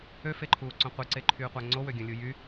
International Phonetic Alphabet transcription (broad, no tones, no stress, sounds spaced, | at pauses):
ø f e ǃʰ uː ǀ õ qʷ i ǀ e ǃʰ yː qʷ æ ŋ͡ǀ o w ø ɡʲ õ lʲ u j y